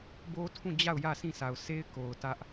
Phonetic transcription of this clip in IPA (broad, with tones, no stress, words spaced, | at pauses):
bo˦tʰũ˦˨d͡ʑa˦˨ʊ̯ jä˦˨sĩ˦˨sʰa˨ʊ̯ se˦ɪ̯ko˨ʊ̯ tä˦ʔ